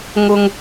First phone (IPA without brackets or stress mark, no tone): ŋ